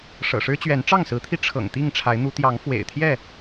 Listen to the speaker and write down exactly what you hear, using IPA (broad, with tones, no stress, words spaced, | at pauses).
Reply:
ʂɤ̰˨˩ʂɻ̩˦t͡ɕɥɛ˨˦n ʈ͡ʂɑ˥˨ŋsɹ̩˨˦t̪ʰi˧ ʈ͡ʂʰɤ̰˨˩ŋt̪i˥˨ŋ ʈ͡ʂʰa˨˦ɪ̯n̪u˨˦ t̪jɑ˨˦ŋfwḛ˨˩ɪ̯t̪ʰjɛ˥˨